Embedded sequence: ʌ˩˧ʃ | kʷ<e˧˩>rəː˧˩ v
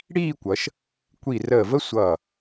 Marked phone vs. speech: incorrect: i˧˩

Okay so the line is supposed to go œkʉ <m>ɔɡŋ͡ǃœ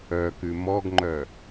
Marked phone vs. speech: correct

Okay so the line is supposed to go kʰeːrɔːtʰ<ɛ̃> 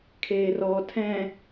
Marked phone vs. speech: correct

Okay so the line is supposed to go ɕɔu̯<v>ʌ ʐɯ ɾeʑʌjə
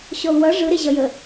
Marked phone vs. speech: incorrect: w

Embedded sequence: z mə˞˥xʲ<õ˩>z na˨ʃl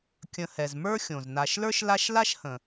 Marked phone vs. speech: correct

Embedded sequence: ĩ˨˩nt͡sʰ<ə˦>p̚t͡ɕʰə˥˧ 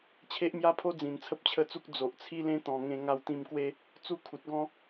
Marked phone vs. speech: correct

